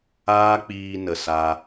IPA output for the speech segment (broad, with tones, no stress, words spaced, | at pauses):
aː˦k͡piː˧ nə˨sa˧